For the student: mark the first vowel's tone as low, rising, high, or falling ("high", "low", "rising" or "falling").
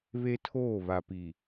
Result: high